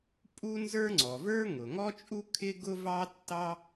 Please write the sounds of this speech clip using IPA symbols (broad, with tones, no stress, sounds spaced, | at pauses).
pʼ u˥ n z ə˞˥ ŋ͡ǀ ɔ˩ v ə˞˥ ŋ ʊ˩ ŋ ɔ˥ t͡ʃʼ u˥ kʰ ɪ˥ ɡ ʊ˥ v ɑ˥ tː ɑ˥